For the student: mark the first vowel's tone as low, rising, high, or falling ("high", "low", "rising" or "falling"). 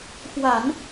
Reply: low